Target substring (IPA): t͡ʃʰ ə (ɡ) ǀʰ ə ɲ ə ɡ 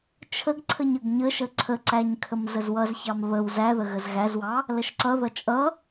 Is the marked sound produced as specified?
yes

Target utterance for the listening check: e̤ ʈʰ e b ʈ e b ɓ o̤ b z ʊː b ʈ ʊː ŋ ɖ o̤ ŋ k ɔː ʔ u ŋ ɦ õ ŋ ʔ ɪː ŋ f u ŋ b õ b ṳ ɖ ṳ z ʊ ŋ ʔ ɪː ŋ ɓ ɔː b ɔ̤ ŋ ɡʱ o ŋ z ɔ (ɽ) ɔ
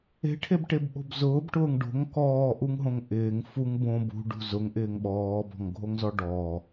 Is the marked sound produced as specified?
no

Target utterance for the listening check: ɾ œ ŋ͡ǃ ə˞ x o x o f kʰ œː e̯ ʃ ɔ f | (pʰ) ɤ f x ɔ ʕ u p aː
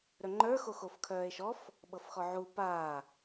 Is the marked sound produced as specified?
no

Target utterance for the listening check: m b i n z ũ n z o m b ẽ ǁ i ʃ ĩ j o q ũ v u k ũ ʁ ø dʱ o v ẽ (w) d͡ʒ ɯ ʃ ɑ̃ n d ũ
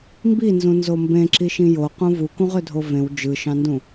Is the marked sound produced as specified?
yes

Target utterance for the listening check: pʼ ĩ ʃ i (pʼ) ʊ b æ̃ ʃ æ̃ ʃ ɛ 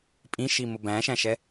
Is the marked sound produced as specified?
no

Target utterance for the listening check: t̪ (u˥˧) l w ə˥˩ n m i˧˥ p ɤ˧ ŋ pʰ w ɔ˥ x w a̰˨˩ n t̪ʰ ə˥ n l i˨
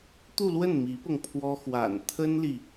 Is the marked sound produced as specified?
yes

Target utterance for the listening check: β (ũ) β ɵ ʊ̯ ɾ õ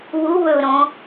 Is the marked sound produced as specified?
no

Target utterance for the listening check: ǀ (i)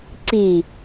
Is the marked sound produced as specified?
yes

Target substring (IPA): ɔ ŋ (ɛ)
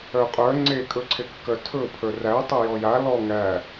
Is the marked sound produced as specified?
no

